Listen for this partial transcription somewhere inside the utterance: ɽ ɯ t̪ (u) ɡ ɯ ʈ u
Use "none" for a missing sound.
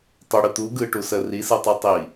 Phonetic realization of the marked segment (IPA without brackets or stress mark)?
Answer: u